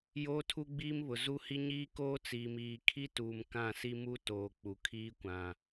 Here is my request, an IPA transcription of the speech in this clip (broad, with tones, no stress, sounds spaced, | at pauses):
j oː˦ tʰ u˦ ɡ͡b iː˦ m β ʊ˨ z u˦ h i˦ ɲ iː˦ k oː˦ t͡s iː˨ m iː˨ kʰ i˦ t uː˨ m k ã˦˨ s i˦ m u˦ t oː˨ k͡p u˨ kʰ iː˦ kʷ ã˨